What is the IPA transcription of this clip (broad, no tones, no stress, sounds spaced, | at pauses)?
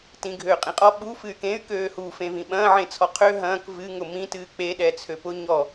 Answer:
t ĩ ɡʱ øː qʼ ĩ qʼ ɔ ɓ u f ɨ y̯ k ẽ y̯ k øː h u f ẽ v ĩ ɓ ɐ̃ː ʕ ẽ t͡sʰ ɔ qʰ ø ɦ ɐ̃ː k v ɨ ŋ ʊ m ĩ t ɨː k͡p e ɗ ɛ t͡sʰ ø p ʊ ɲ ɔ